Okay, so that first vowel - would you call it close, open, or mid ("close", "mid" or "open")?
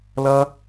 open